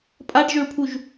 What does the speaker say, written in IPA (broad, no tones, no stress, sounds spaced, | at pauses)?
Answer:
pʼ a ɖ ʒ ø ɭ pʰ u ʒ